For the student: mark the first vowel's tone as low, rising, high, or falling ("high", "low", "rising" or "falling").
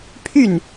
falling